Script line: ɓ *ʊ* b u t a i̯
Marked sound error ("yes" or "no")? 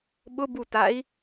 no